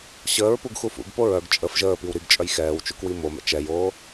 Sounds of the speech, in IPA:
ɕəːɹ puɡxufṵɡ poɹœɡ t͡ʃʼəf ʒəːpiw ɾiɡt͡ʃʼœj xɛːwt͡ʃukwi momɛ̰ t͡ʃɛjoː

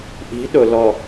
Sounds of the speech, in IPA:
ʔi̤ ɗʊ lɔ

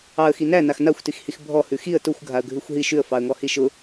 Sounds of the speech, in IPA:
ɑə̯xi næ naxnaxʷtixhix bʱɔhʉ xiə̯ tʊxʷɡʱaə̯ ɡʱʉxʷɦi ʃʉə̯fɑə̯ŋɔ hiʃʊ

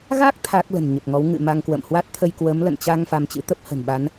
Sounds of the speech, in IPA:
ɣa˦˥k̚ t̪ʰaː˦˥k̚lə̤˨˩nɲə˨˩p̚ŋɔ˨˦w ŋɨ̰˧˨ma˧ŋkwə̰˧˨m hwa˦˥t̚t̪ʰə˧jkwə˨˦m lə̰˧˨nt͡ɕa˧ŋ fa˧mt͡ɕɨ̰˧˥t̪ə˦˥p̚ hə̤˨˩nɓa˨˦n

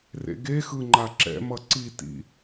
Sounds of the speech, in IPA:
rḛɡexɯ ŋ͡ǃaǁɛ̰mʌ ǀitḭ

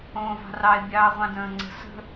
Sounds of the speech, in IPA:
õːvɑ̤rɑɪ̯ bʲɑːʁʷɑ̃də̃ːŋ͡ǀə̤ sə̤

